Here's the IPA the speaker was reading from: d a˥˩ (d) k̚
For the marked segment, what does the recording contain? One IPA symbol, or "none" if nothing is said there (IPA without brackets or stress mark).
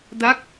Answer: none